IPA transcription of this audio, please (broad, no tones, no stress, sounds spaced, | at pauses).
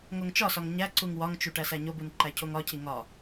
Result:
ŋ o ŋ t͡ʃ ɒ s ɒ ŋ ɲ æ ǀ u ŋ w ɒ ŋ t͡ʃ u ʈ æ s æ ɲ o b u n ǃ æ cʰ o ŋ ɒ cʰ i ŋ ɒ